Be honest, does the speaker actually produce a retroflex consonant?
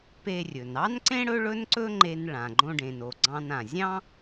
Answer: yes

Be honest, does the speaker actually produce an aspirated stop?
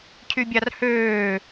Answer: yes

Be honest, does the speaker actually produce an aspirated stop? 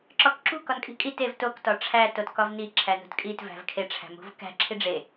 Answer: yes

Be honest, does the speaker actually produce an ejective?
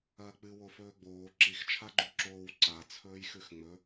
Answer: no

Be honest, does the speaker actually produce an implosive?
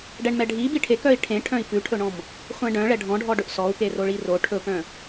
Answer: no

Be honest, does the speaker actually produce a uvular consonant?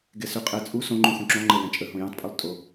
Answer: yes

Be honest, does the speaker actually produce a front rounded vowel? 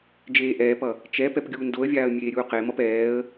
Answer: no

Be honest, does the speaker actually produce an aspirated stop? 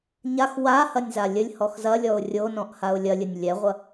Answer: no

